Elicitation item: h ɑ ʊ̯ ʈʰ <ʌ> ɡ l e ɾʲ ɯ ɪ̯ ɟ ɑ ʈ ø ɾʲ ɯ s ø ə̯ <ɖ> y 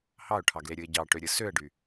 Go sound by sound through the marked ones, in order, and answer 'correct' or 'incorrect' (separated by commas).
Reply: incorrect, correct